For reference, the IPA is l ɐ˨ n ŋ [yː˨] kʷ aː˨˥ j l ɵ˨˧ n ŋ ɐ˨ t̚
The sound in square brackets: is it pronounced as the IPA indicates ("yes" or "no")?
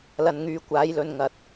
no